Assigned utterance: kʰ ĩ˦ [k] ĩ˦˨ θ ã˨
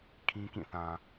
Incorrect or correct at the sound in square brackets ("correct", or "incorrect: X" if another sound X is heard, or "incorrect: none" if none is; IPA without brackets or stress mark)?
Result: correct